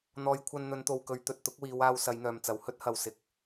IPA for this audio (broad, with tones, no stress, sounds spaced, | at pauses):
n̪ ɔː˨˧ j kʷʰ ɐ˧ n n̪ ɵ˨˧ n t̪ o˨ w k ɵ˨˧ ɥ t̪ ɵ˨ t̚ t̪ ʊ˨˥ k̚ w iː˨˧ w aː˧ w s ɐ˨˧ j n̪ œː˨ m t͡s ɐ˨˧ w h ɵ˥ t̚ h ɐ˨ w s ɪ˨˥ k̚